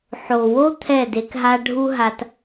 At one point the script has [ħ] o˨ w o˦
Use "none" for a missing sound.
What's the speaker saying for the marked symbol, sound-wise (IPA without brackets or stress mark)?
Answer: ħ